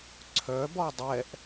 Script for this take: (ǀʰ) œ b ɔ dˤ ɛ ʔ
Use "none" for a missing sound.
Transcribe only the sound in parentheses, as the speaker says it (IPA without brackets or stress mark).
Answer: ǀʰ